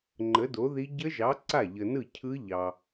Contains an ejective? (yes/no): no